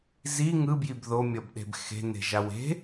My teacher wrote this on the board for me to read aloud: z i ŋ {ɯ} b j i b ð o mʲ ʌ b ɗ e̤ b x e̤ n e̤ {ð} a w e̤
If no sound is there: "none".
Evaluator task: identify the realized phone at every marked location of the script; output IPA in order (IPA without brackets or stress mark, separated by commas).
ɯ, ʒ